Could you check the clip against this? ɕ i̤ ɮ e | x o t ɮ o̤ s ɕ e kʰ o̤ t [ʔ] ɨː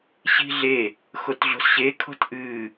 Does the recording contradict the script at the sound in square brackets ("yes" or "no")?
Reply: no